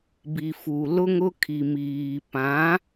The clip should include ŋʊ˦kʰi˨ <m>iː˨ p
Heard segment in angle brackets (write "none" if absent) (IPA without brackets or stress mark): m